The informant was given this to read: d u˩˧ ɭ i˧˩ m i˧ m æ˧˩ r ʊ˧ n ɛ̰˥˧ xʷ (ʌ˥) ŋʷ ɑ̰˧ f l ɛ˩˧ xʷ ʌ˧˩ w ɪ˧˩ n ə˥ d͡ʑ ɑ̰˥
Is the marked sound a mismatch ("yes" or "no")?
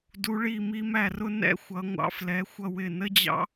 yes